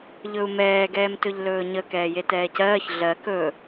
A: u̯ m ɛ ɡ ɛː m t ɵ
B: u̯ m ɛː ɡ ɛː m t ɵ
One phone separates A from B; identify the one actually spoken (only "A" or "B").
B